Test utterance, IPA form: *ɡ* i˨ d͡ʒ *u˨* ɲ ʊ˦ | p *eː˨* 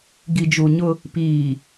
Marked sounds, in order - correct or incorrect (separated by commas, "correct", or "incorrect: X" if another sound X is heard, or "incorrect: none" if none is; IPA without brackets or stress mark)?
correct, correct, incorrect: iː˨